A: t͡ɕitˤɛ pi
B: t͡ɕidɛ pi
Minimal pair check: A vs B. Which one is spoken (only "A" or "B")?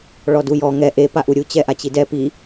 B